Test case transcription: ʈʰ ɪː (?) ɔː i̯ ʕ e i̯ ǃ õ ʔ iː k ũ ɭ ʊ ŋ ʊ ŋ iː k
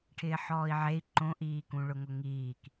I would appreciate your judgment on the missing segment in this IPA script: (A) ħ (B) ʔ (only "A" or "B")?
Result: A